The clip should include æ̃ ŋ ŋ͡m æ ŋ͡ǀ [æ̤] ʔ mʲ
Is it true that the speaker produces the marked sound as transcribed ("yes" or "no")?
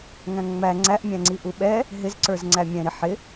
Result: no